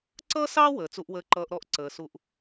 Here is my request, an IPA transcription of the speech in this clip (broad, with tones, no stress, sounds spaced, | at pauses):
ǀ ʌ˥ s ɑ˥ w əː˩ t͡s u˧ ʔ w əː˧ ǃ ʌː˧ ʔ ɾ ɔ˥ ʔ ǀ əː˩ s u˧ ʔ